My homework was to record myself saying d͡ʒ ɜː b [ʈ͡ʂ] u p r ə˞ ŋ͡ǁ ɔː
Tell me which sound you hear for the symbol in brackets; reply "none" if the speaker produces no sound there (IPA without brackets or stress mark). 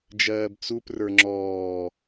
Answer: t͡s